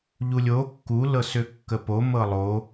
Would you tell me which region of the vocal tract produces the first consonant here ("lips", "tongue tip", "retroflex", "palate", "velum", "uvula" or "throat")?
palate